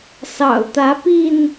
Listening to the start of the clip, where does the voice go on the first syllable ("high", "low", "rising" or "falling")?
low